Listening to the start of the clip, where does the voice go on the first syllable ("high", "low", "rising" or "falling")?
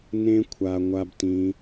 high